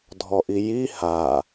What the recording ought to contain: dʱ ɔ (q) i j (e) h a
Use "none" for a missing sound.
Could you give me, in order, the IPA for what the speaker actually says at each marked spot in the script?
ʔ, i

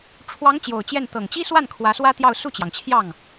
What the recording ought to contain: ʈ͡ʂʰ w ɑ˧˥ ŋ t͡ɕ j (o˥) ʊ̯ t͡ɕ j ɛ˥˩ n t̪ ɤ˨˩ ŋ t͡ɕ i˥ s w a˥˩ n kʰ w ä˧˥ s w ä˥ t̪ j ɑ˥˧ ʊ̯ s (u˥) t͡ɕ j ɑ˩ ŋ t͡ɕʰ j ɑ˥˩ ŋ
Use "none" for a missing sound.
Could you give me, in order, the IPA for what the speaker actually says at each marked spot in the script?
o˨˩, u˥˩

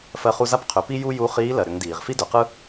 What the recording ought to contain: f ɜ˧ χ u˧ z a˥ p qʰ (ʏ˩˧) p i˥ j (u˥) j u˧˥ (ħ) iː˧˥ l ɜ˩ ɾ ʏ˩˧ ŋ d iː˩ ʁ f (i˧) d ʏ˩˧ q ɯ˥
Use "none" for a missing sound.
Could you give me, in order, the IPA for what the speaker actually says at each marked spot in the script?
ʏ˩˧, u˥, χ, i˥

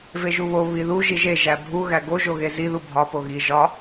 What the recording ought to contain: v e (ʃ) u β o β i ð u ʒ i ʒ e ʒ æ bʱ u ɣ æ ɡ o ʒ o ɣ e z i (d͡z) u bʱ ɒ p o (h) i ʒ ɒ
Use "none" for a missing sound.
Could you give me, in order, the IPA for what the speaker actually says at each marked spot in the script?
ʒ, ð, ɣ

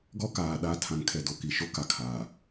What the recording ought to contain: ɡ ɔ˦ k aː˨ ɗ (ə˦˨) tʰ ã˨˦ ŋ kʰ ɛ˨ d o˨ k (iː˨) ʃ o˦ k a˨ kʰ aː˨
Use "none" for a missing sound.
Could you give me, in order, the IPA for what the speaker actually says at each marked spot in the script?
a˦˨, i˨

